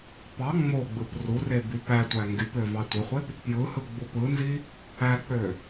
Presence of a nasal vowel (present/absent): absent